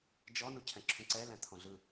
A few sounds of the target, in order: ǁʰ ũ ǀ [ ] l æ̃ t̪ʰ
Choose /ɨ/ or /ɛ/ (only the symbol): ɛ